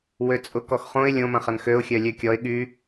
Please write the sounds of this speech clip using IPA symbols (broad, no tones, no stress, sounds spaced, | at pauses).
w ø t͡sʼ ʊ k ɔ x χ õ ɪ̯ lʲ õ m ɐ̃ χ ɐ n x ø ʊ̯ xʲ œ lʲ ø kʲ ɔ ɪ̯ ɠ y